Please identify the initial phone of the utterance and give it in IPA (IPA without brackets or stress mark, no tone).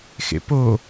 x